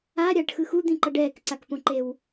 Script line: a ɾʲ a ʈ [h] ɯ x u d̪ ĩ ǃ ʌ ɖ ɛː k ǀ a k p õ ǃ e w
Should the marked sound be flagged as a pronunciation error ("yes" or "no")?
yes